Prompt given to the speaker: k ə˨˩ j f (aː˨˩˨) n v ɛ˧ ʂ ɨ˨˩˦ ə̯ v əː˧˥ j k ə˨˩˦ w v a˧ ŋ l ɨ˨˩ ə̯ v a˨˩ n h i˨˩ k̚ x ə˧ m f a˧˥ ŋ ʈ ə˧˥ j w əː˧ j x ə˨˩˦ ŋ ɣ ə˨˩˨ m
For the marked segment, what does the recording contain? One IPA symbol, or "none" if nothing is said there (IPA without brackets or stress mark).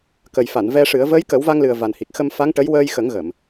a˨˩˨